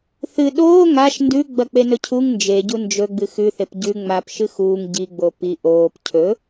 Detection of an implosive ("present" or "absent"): present